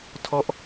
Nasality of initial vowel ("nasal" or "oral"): oral